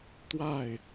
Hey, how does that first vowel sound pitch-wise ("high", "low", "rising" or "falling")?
falling